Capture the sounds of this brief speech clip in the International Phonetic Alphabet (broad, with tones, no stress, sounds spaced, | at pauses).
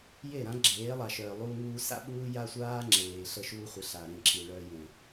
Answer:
j e˦˨ ɾ ã˦ ɡ͡ǁ eː˨˦ lˠ a˨ ʃ œː˨ lˠ u˧ ŋ uː˧ s a̰˦ ɓ uː˦ j a˦ sʷ aː˦ ŋ͡ǁ eː˨ ɬ ə˧ ʃ uː˧ χʷ ə˨ ɬ a˨ ɾ ẽ˦˨ ǁ i˨ ɭ œː˧ j ẽ˨